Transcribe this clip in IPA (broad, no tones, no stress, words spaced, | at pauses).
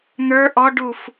n̪ə˞ ʔɔɖuf